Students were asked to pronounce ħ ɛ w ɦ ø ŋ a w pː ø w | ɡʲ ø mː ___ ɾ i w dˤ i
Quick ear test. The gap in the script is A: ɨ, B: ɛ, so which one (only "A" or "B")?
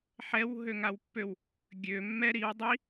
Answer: B